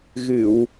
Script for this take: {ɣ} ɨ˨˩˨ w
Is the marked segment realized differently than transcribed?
no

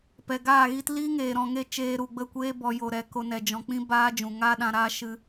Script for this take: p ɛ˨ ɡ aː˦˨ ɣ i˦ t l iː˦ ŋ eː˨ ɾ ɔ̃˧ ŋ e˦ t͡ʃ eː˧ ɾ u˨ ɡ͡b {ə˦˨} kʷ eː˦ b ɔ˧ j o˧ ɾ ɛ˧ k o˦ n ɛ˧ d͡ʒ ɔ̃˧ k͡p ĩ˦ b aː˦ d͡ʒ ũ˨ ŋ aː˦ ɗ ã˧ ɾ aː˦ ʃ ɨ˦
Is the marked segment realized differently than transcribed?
no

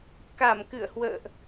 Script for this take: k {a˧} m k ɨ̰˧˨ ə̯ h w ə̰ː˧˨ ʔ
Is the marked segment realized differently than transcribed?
yes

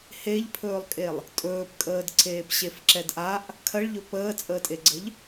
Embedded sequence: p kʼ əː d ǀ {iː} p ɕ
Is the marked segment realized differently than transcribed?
yes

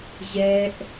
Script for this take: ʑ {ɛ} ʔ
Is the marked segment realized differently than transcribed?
no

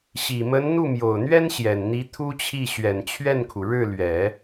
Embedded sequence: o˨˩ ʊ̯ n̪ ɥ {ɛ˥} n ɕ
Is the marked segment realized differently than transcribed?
no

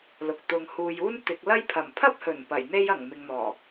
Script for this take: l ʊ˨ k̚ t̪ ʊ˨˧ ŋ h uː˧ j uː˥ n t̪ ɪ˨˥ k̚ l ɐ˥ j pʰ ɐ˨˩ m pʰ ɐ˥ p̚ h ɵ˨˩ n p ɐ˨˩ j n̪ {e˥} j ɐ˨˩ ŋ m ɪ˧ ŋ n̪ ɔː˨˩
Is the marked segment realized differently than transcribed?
no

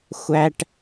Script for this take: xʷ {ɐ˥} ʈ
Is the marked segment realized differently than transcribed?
yes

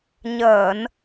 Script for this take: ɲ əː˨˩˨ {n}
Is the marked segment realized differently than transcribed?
no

